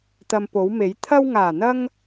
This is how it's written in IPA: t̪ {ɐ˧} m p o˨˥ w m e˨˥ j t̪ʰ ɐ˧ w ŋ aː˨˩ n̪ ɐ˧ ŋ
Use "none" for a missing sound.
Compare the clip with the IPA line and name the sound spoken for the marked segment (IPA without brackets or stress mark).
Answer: ɐ˧